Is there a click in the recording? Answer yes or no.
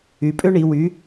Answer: no